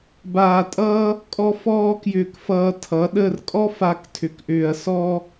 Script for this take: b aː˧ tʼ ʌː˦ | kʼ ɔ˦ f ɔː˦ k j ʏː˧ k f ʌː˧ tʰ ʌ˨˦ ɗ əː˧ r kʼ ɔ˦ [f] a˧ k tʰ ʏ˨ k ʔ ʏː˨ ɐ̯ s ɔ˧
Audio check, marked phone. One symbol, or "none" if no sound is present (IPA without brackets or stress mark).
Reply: f